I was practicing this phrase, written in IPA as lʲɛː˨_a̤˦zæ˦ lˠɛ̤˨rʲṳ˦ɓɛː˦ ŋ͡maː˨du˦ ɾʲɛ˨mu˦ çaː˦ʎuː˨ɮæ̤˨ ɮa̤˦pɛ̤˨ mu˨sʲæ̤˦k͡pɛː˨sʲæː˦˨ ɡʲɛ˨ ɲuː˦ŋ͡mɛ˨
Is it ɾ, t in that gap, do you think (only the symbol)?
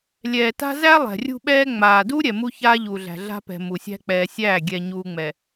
t